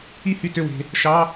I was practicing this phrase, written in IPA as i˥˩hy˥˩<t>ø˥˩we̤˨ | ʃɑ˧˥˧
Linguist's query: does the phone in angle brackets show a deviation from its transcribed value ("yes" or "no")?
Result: no